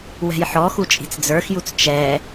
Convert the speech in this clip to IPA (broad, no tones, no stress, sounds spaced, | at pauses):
w ɛ̤ j ħ ɔ x u t͡ʃʼ i̤ t͡s d͡z ə˞ x j u t͡s t͡ʃ ɛ